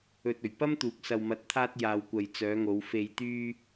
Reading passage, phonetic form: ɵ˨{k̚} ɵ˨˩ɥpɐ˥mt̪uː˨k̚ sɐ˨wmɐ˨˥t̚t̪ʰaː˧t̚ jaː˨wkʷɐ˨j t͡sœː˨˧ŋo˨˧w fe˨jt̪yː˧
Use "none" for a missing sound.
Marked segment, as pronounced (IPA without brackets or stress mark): t̚